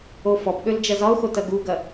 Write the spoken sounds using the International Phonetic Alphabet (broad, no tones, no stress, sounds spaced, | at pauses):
o f ɔ p ɠ ø l d͡ʒ ɐ z ɒ ʊ̯ x o t ɐ ɡ u ɡ ɐ